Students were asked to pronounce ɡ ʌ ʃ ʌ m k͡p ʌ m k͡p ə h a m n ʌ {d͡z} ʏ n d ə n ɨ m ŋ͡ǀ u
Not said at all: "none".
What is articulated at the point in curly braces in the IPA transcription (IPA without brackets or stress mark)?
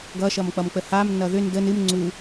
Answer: ð